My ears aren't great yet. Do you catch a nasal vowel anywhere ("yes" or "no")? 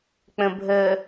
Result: yes